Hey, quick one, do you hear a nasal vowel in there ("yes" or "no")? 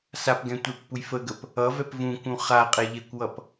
yes